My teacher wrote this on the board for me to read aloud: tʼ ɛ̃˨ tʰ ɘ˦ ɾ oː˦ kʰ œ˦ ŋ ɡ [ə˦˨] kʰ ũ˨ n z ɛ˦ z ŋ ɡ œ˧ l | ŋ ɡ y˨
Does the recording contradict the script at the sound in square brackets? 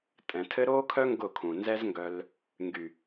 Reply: yes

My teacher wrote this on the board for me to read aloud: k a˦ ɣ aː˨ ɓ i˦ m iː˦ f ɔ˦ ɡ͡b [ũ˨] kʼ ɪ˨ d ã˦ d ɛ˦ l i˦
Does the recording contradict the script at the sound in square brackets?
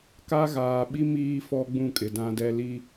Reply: yes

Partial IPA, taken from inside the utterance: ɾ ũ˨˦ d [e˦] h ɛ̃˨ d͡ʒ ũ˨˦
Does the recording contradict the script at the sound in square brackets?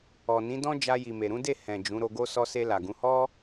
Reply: yes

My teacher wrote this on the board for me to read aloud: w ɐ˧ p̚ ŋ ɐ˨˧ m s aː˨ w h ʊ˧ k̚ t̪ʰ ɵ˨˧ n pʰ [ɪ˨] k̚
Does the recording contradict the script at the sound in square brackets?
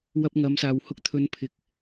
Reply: no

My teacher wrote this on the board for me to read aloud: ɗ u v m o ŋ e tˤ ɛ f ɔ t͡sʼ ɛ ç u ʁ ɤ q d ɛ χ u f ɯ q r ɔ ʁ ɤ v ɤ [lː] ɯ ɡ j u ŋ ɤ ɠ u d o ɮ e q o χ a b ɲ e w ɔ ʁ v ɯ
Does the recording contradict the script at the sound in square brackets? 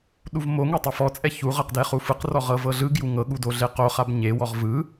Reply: yes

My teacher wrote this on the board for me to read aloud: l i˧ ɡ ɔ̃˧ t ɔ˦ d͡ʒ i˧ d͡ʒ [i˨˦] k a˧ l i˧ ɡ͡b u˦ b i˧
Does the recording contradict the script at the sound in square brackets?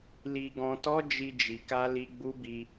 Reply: yes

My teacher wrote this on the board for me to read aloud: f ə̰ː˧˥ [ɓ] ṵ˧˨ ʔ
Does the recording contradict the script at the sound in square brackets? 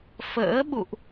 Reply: no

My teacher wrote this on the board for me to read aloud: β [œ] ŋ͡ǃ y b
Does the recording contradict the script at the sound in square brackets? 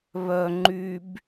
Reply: no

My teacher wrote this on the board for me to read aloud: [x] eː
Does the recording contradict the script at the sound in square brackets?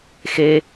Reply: no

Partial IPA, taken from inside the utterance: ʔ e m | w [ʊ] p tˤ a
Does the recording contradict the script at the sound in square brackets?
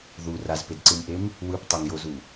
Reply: yes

